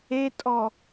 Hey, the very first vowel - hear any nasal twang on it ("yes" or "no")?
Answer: no